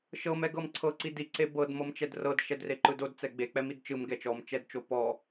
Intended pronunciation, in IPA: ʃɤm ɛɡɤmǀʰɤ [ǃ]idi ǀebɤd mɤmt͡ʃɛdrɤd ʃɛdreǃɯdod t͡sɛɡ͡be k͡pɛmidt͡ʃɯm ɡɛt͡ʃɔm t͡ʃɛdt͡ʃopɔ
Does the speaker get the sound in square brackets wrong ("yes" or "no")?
yes